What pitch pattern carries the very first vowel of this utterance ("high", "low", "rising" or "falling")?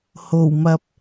low